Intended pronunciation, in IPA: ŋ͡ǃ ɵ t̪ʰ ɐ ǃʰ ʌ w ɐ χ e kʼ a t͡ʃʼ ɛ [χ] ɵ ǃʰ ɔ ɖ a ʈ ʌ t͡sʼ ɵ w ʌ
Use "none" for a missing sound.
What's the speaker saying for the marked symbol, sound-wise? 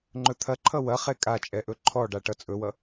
ʔ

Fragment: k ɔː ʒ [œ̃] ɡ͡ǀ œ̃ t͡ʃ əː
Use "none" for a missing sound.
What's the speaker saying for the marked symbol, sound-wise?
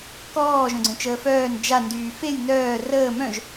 œ̃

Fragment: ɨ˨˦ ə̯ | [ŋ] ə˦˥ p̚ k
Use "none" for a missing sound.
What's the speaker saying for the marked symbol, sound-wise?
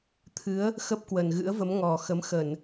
x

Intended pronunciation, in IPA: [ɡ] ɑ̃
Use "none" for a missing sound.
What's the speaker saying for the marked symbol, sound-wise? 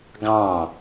ɡ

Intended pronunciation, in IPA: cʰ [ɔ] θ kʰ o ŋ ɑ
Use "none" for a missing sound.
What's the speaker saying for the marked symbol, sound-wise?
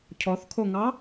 ɔ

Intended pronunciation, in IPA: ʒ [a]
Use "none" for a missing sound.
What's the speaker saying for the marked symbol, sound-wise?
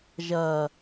ɐ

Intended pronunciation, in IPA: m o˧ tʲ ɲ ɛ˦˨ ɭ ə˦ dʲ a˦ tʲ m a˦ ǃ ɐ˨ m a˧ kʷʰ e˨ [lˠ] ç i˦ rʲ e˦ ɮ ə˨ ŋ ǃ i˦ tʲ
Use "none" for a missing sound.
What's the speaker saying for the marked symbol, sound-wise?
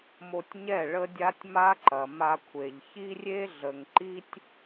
ʎ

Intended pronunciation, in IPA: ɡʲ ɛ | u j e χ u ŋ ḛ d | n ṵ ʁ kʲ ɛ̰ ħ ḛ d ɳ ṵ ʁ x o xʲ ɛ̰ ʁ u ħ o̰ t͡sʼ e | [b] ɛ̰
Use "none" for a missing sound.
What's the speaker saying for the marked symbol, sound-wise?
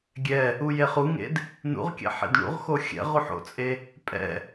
pʼ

